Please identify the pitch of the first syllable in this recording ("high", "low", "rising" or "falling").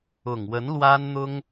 low